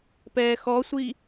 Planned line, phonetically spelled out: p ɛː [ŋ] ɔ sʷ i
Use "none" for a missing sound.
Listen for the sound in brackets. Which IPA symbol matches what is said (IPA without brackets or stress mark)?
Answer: x